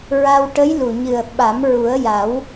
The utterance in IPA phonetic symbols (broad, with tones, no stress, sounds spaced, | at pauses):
ɹ a˧ w ʈ ə˧˥ j l u˨˩ ɲ ɨ˨˩ ə̯ ɓ a˨˩˦ m ɹ u˨˩˦ ə̯ j a˨˩˦ w